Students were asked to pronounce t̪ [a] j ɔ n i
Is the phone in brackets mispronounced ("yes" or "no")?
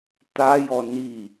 no